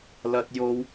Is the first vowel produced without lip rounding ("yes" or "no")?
yes